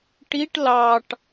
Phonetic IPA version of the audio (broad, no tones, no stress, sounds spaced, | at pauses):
ʈ i ʈ l ɑ ʈ